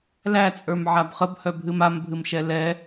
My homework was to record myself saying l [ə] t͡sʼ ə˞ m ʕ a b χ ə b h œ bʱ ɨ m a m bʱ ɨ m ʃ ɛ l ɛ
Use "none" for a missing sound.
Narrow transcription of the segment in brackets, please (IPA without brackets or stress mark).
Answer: æ